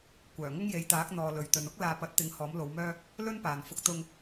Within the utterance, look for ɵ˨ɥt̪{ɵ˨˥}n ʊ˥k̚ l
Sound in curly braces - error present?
yes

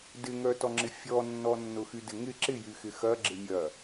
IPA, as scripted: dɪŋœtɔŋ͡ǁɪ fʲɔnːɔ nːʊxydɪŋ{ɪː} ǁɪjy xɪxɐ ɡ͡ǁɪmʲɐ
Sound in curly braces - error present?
yes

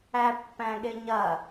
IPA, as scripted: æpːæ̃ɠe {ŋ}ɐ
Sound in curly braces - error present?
yes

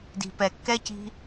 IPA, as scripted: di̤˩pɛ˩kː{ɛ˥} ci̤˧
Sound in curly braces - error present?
no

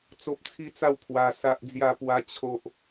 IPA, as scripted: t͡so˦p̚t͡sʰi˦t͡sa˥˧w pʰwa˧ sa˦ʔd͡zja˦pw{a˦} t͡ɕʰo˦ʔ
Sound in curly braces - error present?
no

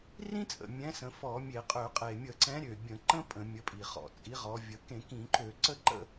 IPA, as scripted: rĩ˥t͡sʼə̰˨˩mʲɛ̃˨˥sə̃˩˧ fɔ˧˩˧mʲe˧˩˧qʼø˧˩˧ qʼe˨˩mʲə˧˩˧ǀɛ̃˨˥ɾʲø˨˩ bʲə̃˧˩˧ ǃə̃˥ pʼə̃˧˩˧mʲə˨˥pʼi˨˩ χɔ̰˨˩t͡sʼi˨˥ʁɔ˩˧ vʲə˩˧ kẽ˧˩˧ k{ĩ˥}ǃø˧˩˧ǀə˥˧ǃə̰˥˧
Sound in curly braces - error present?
yes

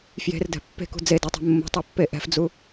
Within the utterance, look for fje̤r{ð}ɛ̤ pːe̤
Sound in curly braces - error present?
yes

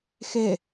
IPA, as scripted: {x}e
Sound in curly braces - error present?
no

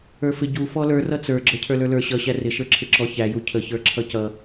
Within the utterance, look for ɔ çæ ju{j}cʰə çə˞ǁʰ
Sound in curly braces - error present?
yes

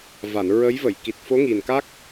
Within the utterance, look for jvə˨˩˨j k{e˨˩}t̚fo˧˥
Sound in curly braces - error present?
yes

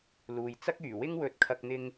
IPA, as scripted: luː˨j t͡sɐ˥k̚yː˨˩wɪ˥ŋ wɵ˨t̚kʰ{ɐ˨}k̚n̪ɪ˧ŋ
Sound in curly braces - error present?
no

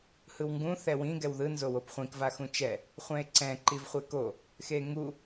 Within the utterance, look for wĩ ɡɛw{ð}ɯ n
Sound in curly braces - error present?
no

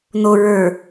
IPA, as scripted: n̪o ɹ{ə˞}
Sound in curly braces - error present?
no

